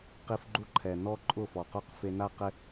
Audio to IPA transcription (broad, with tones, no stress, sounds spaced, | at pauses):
q i˧ f ɡ͡ǃ u˦ ǃʰ ɛ˨ n ɔ˦ ǃʼ ʊ˦˨ f ɔ˨ q o˦ q f e˧ n a˦ q ɪ˦